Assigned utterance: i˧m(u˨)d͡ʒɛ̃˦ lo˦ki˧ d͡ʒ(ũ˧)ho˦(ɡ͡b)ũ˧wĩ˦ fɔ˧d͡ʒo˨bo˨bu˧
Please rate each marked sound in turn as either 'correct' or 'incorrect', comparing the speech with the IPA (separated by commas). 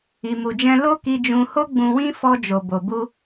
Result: incorrect, correct, correct